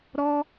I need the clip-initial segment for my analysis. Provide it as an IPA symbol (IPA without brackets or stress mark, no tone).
ɾ